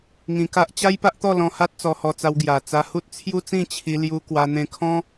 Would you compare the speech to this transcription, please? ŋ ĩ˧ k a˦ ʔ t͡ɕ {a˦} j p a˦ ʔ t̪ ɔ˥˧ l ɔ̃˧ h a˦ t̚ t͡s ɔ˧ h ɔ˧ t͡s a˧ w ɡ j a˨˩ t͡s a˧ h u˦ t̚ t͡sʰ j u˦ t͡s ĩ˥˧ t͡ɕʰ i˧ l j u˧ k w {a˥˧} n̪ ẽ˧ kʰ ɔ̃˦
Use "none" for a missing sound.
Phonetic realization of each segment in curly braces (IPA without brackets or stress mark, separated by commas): a˦, a˧